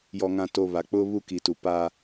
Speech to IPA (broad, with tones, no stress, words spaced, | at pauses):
jɔ˨ŋã˨to˨ βa˨k͡pʊ˦ βu˦ki˨tu˨ pa˦